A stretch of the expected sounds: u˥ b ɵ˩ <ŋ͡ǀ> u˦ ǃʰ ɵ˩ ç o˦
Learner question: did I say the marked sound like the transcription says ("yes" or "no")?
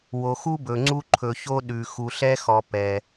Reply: yes